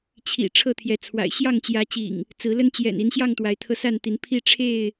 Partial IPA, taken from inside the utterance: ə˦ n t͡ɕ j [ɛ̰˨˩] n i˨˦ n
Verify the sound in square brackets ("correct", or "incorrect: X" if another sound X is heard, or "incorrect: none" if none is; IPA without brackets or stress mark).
correct